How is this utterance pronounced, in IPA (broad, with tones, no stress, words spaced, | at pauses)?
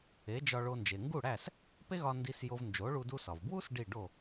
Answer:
e˩˥d͡ʒɒ˧ɭo˧ nd͡ʒe˩ŋɡu˥˩ɽæ˥˩s | pe˥ɣɒ˧ ndi˧s jo˧vnd͡ʒo˩˥ɭu˧ du˧sɒ˩vbwu˥s ɖi˥˩ɖo˥˩